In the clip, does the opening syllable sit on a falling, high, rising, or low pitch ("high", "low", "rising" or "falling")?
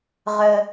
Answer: high